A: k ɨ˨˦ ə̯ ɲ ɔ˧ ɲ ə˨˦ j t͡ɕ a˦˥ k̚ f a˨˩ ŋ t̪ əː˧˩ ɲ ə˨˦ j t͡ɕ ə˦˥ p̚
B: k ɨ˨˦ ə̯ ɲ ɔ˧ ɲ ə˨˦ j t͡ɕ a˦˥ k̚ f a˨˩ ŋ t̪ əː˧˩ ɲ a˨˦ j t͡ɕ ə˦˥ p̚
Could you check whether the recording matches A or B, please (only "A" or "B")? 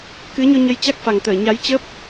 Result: B